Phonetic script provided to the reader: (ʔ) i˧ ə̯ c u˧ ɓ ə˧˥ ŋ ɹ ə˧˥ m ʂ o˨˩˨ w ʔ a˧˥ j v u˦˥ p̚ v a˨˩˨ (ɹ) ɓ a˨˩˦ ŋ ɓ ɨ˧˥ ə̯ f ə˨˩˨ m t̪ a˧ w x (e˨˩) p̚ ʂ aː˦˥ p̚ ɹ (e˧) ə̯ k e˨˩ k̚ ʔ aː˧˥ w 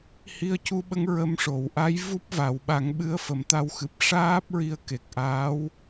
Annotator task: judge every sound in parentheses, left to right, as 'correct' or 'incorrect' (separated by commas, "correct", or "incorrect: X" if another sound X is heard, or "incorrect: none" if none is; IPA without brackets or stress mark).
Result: incorrect: h, incorrect: w, incorrect: ɨ˨˩, incorrect: i˧